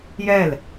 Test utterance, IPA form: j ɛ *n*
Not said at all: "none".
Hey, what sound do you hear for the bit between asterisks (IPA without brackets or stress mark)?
l